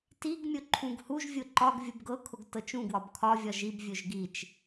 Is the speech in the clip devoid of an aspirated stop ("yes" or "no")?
no